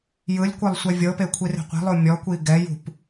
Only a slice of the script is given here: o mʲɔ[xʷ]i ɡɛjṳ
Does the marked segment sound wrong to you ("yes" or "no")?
yes